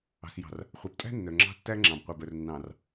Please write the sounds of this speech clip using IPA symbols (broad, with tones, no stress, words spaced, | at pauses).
ɑ̤˨sjɑ̤˨r | χʷœ˨btʼæ̤˦ nːœ˨ŋ͡ǁɑ̤˦ tːæ˦ŋ͡ǁɑ̃˨bqʷœ˨b œ˨rnːɑ̃˨r